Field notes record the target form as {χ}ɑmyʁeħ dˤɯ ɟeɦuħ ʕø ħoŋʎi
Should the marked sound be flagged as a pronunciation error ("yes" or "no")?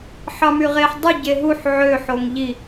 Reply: yes